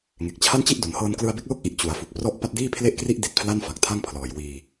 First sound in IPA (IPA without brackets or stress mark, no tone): ŋ